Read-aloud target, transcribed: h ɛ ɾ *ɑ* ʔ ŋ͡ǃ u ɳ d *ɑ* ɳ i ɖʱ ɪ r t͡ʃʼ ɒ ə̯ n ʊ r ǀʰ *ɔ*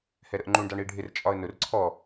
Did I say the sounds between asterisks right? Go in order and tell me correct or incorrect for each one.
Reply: incorrect, correct, correct

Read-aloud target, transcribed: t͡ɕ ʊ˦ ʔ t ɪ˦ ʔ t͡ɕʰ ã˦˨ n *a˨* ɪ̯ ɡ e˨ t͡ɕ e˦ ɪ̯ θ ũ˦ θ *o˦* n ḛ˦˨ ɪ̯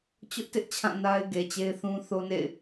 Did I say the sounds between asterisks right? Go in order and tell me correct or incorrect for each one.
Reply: incorrect, correct

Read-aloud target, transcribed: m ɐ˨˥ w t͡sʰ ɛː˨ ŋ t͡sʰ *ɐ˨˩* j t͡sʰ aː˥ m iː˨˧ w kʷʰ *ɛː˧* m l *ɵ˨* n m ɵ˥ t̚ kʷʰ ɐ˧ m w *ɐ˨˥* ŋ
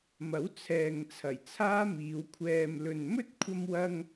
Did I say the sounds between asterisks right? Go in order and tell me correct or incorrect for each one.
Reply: correct, correct, correct, incorrect

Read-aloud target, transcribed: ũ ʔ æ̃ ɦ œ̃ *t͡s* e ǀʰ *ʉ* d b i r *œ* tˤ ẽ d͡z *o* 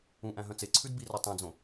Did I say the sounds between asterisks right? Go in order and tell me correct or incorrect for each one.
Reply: correct, correct, correct, incorrect

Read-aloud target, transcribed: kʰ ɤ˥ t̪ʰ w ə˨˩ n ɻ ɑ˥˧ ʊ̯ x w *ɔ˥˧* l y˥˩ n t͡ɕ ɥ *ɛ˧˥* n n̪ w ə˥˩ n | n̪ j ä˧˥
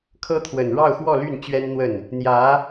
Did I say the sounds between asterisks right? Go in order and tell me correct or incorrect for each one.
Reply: correct, incorrect

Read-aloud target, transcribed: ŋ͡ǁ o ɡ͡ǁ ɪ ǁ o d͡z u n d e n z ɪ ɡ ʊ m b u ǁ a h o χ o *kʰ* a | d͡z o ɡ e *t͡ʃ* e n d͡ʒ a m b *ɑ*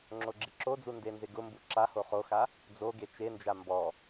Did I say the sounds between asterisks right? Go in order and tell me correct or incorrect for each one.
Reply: incorrect, correct, incorrect

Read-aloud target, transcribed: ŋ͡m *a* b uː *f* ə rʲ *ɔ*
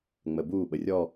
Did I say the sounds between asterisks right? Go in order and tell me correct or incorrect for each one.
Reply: incorrect, incorrect, correct

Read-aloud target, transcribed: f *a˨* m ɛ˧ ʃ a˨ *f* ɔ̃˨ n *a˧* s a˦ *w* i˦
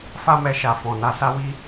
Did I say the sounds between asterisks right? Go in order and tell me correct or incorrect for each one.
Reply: incorrect, correct, correct, correct

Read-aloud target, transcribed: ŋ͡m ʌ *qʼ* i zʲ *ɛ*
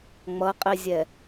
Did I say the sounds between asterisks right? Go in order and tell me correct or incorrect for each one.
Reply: correct, correct

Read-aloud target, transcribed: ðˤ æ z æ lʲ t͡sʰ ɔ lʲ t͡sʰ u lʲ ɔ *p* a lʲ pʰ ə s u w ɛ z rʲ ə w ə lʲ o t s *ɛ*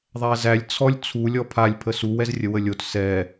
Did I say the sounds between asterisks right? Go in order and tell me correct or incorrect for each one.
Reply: incorrect, correct

